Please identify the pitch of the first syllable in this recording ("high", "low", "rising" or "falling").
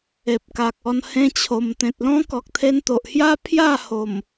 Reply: low